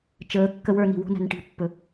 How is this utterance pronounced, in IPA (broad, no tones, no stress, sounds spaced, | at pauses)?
t͡ʃ əː kː ə w ə˞ n i̤ w o̤ n æ̤ n ʈ i̤ pː ɵ